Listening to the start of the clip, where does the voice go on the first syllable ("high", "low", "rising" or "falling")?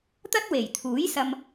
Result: high